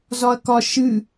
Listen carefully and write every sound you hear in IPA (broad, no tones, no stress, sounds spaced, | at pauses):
z ɒ ɐ̯ k ɒ ʃ ɨ